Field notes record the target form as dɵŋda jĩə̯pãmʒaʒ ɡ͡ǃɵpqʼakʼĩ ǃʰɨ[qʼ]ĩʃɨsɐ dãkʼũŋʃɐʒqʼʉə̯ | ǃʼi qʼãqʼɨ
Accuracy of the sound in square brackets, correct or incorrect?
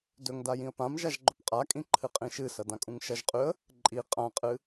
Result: correct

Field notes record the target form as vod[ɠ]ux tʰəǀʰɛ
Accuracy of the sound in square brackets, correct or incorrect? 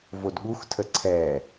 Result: correct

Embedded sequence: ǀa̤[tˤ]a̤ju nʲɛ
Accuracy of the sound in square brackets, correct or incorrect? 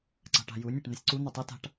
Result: incorrect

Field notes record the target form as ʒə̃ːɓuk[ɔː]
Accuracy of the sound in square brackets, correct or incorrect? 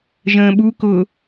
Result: incorrect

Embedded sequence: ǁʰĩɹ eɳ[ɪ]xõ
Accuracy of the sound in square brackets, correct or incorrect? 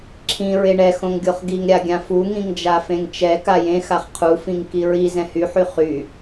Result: incorrect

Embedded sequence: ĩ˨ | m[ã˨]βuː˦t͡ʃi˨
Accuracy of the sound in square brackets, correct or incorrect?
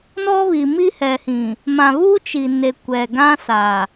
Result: correct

